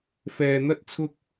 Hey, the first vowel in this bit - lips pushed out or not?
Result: no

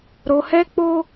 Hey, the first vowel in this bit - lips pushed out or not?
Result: yes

